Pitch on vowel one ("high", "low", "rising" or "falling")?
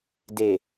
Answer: low